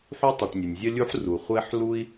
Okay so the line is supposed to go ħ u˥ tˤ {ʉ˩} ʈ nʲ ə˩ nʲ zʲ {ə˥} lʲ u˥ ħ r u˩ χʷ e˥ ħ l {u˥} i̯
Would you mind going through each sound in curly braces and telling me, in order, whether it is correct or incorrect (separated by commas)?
correct, correct, correct